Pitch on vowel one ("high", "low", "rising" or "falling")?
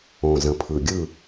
low